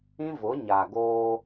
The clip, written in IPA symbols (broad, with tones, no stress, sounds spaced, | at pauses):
ĩ˦ v ʊ˨˦ ɲ a˨ ɡ oː˦